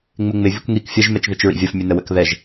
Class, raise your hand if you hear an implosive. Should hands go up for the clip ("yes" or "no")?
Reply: no